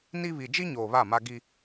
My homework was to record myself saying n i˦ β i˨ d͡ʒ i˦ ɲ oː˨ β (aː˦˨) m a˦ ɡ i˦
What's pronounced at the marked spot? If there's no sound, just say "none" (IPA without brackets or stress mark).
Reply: a˦˨